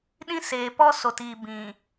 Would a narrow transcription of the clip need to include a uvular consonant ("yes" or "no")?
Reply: no